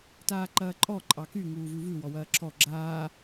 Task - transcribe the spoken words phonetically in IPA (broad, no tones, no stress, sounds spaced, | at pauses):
t aː ǃ ɐː ǃʼ ɔ ǃʼ ɑ k y ŋ uː v ʉ v ʉ w ɔ w ɐː ǁʰ ɔ ɡ͡ǁ aː